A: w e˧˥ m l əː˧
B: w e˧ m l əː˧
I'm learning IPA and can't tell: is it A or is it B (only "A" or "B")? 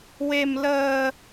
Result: B